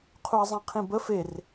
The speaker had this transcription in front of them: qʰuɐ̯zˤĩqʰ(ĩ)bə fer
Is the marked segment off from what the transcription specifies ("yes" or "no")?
no